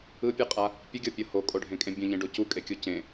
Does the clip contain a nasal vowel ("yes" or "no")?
yes